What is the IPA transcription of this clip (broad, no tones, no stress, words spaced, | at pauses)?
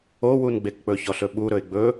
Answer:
owunɡ͡bek k͡pɵçɔɬɵɓu ɾɵɪ̯ɡ͡bɵ